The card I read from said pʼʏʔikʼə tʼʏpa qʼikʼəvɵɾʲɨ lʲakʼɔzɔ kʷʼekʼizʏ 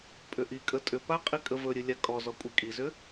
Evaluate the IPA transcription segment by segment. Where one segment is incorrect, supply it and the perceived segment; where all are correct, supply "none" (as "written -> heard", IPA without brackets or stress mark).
none